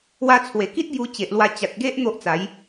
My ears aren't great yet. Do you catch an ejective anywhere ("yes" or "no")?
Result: no